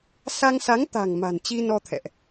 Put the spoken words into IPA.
s a˧ ŋ s a˨˦ ŋ t̪ a̤˨˩ ŋ m a̤˨˩ n t͡ɕ i˧ n ɔ˧ t̪ʰ ɛ̰˧˨ ʔ

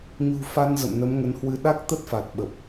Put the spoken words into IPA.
ɲ ṳ˨˩ f a˧ n z ə̰˧˨ m n ə˨˦ m ŋ ə˨˦ n h w ɨ˧ ɗ a˦˥ k̚ t̪ ə˦˥ t̚ f a˨˩ t̚ ɓ ə˨˩ p̚

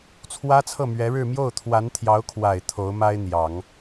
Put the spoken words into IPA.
t͡sʰ w ä˥ t͡sʰ ɤ˥˩ m ɥ ɛ˧˥ ɻ ɻ̩˥˧ m j o˥˩ ʊ̯ t̪ʰ w a˧˥ n t̪ʰ j ɑ˧˥ ʊ̯ kʰ w a˨˩ ɪ̯ t̪ʰ o˧˥ ʊ̯ m a˥ ɪ̯ n̪ j ɑ˨˩˦ ŋ

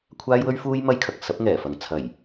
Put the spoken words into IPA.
kʷʰ aː˥ j w ɵ˥ ɥ f uː˥ j m ɐ˥ j kʰ ɐ˨ k̚ s ɐ˨˥ p̚ ŋ ɛː˨˩ f ɐ˨ ŋ t͡sʰ ɐ˨˩ j

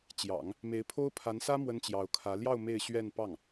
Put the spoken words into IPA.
t͡ɕ j ɑ̰˨˩˦ ŋ | m e˧˥ ɪ̯ pʰ o˥ ʊ̯ pʰ a˧˥ n s ä˥ m w ə˥ n t͡ɕ j ɑ˧˥ ʊ̯ kʰ ä˧˥ l j ɑ˥˧ ʊ̯ m e˥˧ ɪ̯ ɕ ɥ ɛ˥˧ n p ɑ˥˩ ŋ

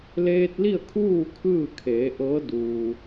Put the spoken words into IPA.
l eː˧ t̚ l i˥˨ ə̯ kʰ uː˥˨ kʰ ɯː˥˨ kʰ eː˩˧ ʔ ɤː˧˥ d uː˩

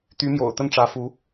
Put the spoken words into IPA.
t̪ y˧˥ m j o̰˨˩ ʊ̯ t̪ ə˥˩ n ʈ͡ʂ ä˧˥ f u˧˥

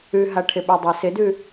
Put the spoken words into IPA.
ʉ ɦ a ʈʰ ɪ ɓ ʉ dˤ æ s ɪ d ʉ

